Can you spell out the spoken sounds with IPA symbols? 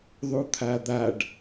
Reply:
ðˤ u t̪ʰ a d̪ a ɖ

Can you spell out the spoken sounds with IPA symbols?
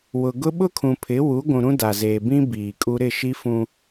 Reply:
w ʊ˨ ɡ ʊ˦ ɓ ʊ˦ kʰ ũ˨ pʰ ɪ˨˦ w u˨˦ ɡʷ ũ˨ ɾ ũ˦ d a˨ z eː˨ b ĩ˦ b iː˨ kʼ u˦ ɾ ɪ˦˨ ʃ i˦ f ũ˦

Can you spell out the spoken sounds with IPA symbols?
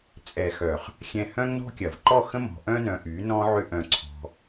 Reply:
t͡sʼ ɛ˨ x œ˨ χ | xʲ ɛ̃˧ h œ̃˦ ŋ n ɔ̤˦ kʲ ɐ˨ v ǃ ɔ˦˨ x ə̃˦ m ɔ̤˨ ʔ œ̃˦ n œ̃˧ ʔ y˨˦ n ɔ̃˦ ʕ ʏ˦ ʔ œ̃˧ ǀʰ ɔ̤˧

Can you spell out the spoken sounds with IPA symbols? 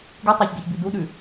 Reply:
ɡ ɨ tˤ a ç ɡ e ç b ʉ d u ɗ ʉ

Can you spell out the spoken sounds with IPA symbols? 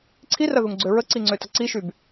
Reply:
ǀʰ i r ɐ ð u ŋ ɡ͡ǀ ø ɹ ə ǀ i ŋ͡ǀ ø t ɐ ǀ i ʃ y b

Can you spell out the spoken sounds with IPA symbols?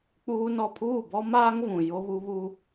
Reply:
k͡p uː˦ n ɔ˨ pʰ uː˦˨ b ɔ˦ m aː˦ ŋ v ũ˨ j o˦ β u˦ β u˦

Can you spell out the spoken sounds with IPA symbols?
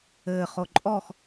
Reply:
ɘː χ o ǃʼ ɔ x

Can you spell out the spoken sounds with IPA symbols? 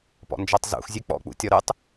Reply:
p ɔ̰ n d͡ʒ ɔ tˤ z ṵ x zʲ ʉ k͡p ɔ̰ k͡p ṵ tʲ ɔ ɾ ʉ tˤ

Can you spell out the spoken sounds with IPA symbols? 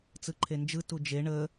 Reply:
t͡s ɯ ǃʰ e n d͡ʒ ɯ t u d͡ʒ e ɳ ə

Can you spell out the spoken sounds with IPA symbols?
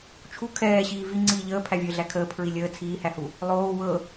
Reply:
t͡ʃʰ u kʰ ɛː ɕ iː v i ŋ͡ǀ iː ʎ əː pʰ æ vʲ əː ɮ æ kʰ əː pʰ ɹ i lʲ əː t͡sʰ iː h æ h u | lˠ oː w ɤ

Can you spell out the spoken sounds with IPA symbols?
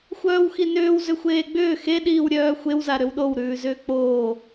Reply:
xʷ œː w x i n ʏː w z ʏ xʷ eː ɡ͡b ʏː x e ɗ iː w ɾʲ œː xʷ e w z a ɾ ʏ w ɗ o w ɾ ʉː z ʏː k͡p oː

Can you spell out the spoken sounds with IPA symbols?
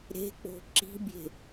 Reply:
ɾ e̤ k͡p o̤ ǁ i̤ bʲ e̤

